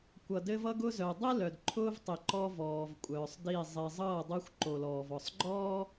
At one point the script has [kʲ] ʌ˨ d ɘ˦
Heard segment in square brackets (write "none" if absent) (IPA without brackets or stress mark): kʷ